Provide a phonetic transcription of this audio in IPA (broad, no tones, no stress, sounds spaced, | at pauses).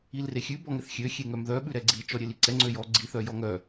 i l r e xʲ ʉ b ɔ ŋ ɛ θ xʲ ø xʲ e ŋ œ m ð œ ɓ ʉ ɾ ɛ ɡ͡ǀ i t͡ʃ ɔ ɾʲ e l i ǀ ɛ ŋ͡ǀ ø j ɔ ɡ͡ǀ i θ œ j ɔ ŋ œ